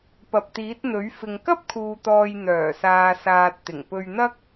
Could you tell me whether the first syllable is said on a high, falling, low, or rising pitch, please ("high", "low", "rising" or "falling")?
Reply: low